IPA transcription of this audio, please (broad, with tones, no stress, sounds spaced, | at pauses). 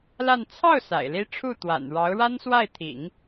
l a˥˧ n t͡sʰ ɑ˥˩ ʊ̯ s a̰˨˩ ɪ̯ l i˥ ʈ͡ʂʰ u˥˩ t̪ w a̰˨˩ n ɻ ɑ˧˥ ʊ̯ ɻ a˥ n s w a˥˩ ɪ̯ t̪ʰ ḭ˨˩˦ ŋ